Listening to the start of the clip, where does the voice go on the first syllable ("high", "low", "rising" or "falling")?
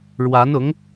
rising